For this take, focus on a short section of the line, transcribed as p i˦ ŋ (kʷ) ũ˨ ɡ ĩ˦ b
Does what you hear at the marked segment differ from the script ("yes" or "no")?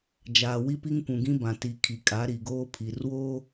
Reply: no